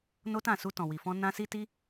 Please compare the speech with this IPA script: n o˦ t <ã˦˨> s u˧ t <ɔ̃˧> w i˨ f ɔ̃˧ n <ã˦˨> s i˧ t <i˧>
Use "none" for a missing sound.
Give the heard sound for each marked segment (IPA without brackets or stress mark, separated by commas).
ã˦˨, ɔ̃˨, ã˧, i˧